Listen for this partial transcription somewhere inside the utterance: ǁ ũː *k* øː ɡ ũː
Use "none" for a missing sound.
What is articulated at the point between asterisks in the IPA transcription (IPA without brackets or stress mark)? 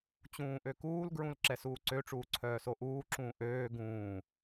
ʔ